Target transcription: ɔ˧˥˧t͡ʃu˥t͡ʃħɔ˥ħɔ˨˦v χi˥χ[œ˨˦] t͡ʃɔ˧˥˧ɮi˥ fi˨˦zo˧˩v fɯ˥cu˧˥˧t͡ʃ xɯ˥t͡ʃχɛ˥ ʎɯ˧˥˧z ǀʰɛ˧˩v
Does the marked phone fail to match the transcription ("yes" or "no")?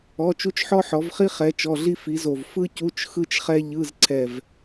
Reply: yes